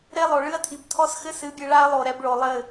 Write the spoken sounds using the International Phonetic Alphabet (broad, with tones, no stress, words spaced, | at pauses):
ɾe˦lˠo˨ɭɨ˦ɐ̯ tʰi˨b tʰɔ˦sxɘ˦ sɨ˨˦bʲɨ˨ɭa˦ɐ̯ lˠo˨ɾɛ˧bɭo˨ lˠɘ˦˨